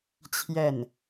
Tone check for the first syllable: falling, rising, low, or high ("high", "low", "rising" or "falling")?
falling